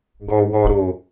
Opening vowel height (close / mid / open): mid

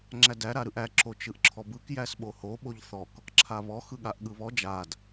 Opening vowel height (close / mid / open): open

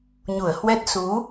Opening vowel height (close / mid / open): close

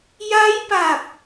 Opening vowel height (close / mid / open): open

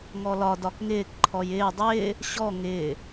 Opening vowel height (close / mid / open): mid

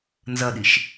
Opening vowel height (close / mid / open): open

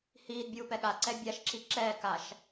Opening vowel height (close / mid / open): close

